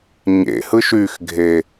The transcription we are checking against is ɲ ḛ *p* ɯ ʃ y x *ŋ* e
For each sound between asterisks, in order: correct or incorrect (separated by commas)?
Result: incorrect, incorrect